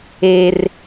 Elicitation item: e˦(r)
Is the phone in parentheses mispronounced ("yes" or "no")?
no